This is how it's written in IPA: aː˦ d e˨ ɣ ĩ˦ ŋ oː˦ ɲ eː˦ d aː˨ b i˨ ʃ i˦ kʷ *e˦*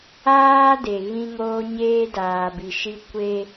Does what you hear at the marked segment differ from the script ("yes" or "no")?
no